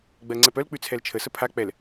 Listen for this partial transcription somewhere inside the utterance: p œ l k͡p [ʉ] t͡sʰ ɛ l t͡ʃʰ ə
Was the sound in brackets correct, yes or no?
yes